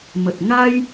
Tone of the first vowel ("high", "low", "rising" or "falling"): low